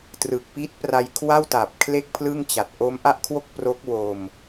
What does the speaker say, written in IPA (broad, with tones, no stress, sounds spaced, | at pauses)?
t r ɯ˨˩ k̚ p i˦˥ t̚ p r a˧ j kʰ w a˥˩ w t a˨˩ p̚ kʰ l e˥˩ k̚ pʰ l ɯ˥˩ ŋ t͡ɕ a˨˩ t̚ ʔ o˦˥ m ʔ a˥˩ ʔ kʰ w o˥˩ k̚ p r o˦˥ k̚ w o˧ m